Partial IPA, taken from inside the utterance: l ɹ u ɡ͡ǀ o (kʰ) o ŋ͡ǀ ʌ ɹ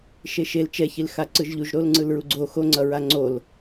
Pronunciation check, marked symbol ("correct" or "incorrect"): incorrect